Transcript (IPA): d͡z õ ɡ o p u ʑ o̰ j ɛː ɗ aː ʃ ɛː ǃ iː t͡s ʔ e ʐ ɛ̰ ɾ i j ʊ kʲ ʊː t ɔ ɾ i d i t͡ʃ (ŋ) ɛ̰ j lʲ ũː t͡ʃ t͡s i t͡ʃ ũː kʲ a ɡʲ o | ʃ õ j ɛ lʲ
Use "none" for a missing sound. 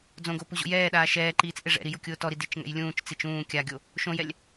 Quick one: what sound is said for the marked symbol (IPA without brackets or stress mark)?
ŋ